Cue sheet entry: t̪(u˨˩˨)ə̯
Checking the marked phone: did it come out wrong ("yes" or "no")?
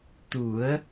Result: yes